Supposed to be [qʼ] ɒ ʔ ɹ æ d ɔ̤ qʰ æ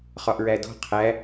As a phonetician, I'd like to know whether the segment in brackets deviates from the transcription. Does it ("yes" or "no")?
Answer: yes